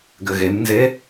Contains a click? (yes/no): no